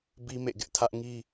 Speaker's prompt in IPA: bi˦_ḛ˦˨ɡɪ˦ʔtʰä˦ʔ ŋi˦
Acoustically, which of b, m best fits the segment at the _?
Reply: m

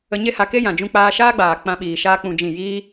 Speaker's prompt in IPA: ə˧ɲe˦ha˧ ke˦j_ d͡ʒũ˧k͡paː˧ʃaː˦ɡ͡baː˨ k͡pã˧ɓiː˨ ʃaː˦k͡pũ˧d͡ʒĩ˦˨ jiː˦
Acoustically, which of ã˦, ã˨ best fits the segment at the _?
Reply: ã˨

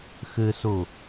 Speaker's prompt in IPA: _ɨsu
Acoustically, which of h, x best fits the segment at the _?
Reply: x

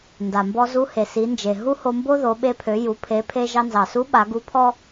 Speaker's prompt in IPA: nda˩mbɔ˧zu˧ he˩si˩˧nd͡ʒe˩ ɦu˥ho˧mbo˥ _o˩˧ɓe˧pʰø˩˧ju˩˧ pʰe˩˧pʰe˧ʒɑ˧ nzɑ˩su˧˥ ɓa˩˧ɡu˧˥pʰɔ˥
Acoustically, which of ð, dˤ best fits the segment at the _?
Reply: ð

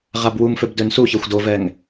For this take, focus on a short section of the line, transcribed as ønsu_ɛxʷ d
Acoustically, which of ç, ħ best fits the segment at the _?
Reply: ç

